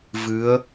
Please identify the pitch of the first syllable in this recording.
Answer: rising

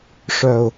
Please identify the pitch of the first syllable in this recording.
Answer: low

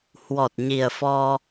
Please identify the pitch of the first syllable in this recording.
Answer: low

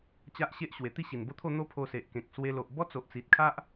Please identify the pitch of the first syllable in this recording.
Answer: high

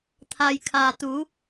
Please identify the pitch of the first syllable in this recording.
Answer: low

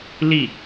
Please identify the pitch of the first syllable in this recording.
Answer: falling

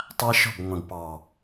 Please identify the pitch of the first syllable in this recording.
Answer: high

